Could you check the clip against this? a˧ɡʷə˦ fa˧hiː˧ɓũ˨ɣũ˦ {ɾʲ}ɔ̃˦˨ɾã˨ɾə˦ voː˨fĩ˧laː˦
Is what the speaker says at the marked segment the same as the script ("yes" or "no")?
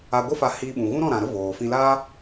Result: no